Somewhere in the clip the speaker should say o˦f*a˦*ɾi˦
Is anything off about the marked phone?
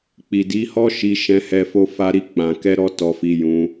no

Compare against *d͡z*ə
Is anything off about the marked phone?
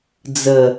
no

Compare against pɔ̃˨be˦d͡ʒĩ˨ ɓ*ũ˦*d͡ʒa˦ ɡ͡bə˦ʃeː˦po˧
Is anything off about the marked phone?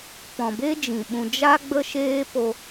yes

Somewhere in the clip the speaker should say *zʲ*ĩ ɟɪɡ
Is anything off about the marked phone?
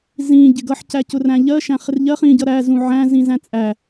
yes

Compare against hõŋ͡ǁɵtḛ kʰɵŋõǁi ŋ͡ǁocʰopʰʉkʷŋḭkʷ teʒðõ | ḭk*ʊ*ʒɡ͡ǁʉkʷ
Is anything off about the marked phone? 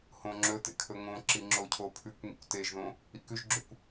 yes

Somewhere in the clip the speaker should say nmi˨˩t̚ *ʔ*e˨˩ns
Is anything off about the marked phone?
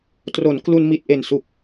no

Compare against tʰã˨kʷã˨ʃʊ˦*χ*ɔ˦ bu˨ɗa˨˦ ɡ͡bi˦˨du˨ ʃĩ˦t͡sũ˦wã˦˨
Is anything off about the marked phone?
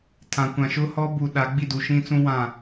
yes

